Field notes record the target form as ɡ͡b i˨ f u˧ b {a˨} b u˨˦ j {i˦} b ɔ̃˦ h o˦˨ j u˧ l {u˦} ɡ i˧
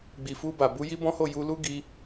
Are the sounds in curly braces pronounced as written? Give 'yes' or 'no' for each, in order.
yes, yes, yes

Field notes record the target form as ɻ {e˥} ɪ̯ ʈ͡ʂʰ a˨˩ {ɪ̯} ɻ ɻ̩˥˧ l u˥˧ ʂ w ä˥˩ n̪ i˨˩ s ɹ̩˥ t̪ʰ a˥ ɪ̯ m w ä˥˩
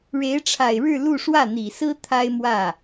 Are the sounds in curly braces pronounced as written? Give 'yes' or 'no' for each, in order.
no, yes

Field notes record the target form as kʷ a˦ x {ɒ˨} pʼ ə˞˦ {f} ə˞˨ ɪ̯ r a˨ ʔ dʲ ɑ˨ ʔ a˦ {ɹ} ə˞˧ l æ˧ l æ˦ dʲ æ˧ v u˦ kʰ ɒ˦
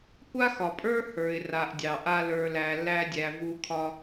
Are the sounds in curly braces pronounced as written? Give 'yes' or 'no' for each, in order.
yes, no, no

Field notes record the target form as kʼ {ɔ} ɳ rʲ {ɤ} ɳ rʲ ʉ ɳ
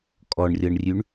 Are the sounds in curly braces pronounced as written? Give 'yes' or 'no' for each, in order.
yes, yes

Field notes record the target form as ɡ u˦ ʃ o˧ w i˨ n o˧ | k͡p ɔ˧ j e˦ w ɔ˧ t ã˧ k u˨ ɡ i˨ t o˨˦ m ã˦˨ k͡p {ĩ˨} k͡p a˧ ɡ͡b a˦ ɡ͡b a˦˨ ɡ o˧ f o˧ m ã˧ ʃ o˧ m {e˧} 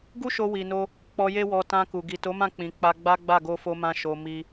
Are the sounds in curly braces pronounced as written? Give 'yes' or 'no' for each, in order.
yes, no

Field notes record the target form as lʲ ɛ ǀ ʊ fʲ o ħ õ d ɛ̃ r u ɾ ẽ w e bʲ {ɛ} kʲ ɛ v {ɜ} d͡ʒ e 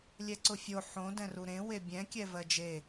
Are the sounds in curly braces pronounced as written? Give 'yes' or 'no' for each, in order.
no, yes

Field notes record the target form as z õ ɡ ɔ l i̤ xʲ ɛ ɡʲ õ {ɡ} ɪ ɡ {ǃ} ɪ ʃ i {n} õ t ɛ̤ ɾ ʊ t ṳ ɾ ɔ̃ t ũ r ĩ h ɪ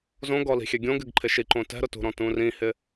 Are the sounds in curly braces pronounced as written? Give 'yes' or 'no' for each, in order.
yes, no, no

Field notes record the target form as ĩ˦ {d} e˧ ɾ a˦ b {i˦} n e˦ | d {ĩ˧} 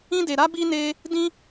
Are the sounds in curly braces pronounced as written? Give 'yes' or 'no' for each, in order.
yes, yes, no

